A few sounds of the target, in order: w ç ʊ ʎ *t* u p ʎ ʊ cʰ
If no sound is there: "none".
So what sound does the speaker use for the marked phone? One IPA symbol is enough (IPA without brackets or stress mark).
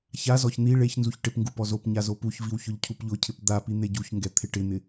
cʰ